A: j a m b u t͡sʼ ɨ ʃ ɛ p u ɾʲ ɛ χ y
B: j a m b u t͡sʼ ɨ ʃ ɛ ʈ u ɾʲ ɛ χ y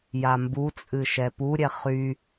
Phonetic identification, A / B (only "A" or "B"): A